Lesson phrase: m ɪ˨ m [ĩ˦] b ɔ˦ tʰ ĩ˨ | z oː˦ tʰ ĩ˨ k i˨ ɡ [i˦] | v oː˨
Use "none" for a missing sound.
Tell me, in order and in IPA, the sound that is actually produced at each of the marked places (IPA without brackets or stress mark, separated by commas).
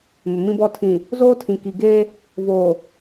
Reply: ĩ˦, e˦